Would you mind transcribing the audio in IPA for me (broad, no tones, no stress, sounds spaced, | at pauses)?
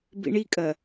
b ḭ ɳ i kʼ ɐ